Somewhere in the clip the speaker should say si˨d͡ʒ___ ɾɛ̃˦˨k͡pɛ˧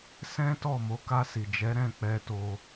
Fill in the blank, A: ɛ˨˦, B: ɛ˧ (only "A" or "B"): A